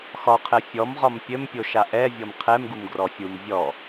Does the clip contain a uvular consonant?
yes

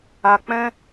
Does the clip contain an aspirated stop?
no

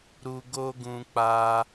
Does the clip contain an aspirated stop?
no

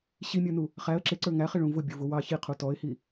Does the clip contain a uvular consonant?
yes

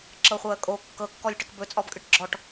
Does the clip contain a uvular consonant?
yes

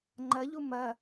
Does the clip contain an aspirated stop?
no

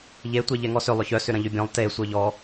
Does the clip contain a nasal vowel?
yes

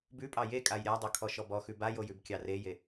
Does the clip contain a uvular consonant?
no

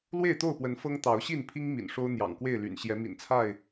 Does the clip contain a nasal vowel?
no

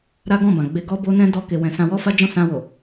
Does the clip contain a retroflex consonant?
no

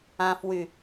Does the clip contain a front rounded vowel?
yes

